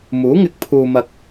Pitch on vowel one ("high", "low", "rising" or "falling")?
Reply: rising